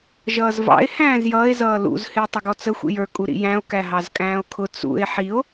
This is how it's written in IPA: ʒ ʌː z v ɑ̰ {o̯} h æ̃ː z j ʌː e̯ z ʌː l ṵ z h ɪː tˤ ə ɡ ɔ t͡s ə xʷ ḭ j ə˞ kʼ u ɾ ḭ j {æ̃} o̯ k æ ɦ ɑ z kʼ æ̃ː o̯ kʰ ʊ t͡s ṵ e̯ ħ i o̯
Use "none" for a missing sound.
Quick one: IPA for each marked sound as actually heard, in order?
e̯, æ̃

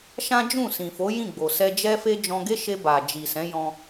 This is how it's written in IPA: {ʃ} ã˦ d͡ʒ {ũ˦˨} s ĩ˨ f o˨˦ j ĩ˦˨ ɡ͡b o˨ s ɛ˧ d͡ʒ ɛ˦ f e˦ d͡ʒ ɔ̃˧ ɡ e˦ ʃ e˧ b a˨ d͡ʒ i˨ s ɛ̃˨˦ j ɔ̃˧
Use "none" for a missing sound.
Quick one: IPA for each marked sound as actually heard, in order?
ʃ, ũ˦˨

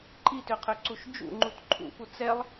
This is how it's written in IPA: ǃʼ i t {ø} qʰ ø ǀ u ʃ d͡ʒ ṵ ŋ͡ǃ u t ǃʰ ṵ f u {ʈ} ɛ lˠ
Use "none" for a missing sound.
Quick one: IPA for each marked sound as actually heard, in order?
ø, t͡s

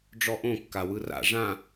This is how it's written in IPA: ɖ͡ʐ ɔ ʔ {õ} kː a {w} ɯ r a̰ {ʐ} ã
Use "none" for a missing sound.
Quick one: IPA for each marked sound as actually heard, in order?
õ, w, ʐ

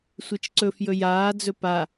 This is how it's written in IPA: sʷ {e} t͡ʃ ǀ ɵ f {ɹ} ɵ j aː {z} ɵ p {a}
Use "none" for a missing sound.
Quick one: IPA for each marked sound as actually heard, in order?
e, j, d͡z, a

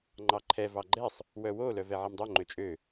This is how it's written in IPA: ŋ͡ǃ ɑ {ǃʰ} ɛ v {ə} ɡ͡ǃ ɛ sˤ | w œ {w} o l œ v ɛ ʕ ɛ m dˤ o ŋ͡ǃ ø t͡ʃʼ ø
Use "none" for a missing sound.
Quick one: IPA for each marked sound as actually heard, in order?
ǃʰ, ɑ, w

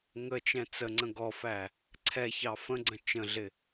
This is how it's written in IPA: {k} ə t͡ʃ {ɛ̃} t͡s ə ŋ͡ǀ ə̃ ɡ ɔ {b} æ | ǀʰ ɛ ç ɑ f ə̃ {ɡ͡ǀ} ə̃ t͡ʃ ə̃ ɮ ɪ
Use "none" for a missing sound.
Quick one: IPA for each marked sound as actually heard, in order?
ŋ, ɛ̃, f, ɡ͡ǀ

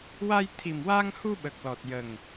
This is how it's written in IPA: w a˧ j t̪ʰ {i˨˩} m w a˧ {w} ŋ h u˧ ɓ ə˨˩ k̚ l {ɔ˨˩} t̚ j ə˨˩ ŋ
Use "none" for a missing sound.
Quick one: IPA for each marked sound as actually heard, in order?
i˨˩, none, ɔ˨˩

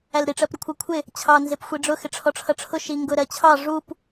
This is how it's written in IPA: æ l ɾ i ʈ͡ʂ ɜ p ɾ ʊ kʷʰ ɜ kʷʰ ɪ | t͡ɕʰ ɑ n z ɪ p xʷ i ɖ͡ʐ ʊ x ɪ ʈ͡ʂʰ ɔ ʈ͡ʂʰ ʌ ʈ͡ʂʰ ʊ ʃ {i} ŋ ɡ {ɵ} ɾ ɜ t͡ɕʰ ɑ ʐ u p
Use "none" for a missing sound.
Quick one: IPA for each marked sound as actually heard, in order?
i, ʊ

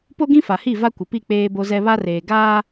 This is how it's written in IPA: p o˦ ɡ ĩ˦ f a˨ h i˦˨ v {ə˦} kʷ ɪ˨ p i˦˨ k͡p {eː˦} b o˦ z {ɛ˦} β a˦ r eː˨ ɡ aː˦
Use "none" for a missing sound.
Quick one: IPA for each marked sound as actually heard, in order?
a˦, eː˦, ɛ˦

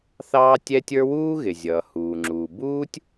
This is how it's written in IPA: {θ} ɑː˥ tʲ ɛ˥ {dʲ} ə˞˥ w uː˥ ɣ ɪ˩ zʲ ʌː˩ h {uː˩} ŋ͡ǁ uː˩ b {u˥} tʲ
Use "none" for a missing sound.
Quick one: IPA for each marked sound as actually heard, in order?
θ, tʲ, uː˩, uː˥

